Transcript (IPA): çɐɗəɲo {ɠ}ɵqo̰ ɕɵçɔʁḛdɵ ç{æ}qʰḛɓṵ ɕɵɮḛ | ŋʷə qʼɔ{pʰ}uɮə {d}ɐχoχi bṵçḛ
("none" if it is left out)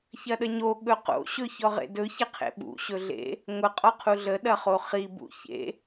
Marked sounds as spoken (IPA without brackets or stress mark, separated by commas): ɠ, ɐ, qʰ, ɗ